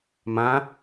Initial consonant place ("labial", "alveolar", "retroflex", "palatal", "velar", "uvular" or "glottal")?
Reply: labial